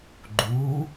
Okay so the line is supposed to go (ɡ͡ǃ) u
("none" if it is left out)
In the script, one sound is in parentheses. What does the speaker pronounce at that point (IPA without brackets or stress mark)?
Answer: ɡ͡ǃ